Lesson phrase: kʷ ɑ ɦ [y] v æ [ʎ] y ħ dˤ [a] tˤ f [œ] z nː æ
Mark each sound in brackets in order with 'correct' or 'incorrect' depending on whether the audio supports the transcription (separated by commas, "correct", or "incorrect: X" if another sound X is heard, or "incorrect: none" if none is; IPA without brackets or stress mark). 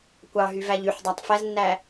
correct, correct, incorrect: æ, incorrect: æ